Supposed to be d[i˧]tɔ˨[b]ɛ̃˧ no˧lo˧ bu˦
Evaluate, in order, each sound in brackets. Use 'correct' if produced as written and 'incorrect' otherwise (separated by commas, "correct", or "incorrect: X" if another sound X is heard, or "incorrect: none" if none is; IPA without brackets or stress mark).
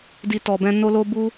correct, correct